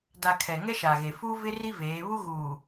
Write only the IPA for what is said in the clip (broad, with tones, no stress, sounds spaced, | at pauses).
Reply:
d a˨ kʰ ɛ˨ ŋ ɛ˦ ʃ a˨ ɣ e˨ f u˦ v ɪ˦ r i˦ v eː˨˦ β u˦ ɣ uː˨